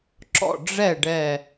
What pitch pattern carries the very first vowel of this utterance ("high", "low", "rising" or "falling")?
falling